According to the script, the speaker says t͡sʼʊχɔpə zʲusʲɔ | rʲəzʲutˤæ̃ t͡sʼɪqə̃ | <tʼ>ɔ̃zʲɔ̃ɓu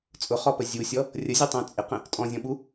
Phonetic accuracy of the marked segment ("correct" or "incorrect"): correct